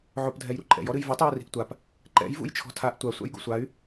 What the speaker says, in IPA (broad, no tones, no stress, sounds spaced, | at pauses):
ʕ o p dʱ ɛ j ɾ ṵ ǃʼ ɛ̰ j ɔ ɾ ɨ j v u tˤ j ɛ r i̤ ʔ tʷ a p | ǃ ɛ̰ j v ṵ j t͡ʃʰ ɔ̤ tʰ a ʔ tʷ a sʷ a̰ j ɡ o̰ sʷ a y̯